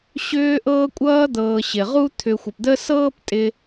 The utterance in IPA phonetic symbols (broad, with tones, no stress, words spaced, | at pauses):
ɕʏː˥ ʔɤː˥kʷʼʌː˥ d̪ɤː˨ɕɪ˩ʁu˦ t̪ʰʏ˨xʷɪ˩pd̪ə˦ sɤː˦ptʼɪ˨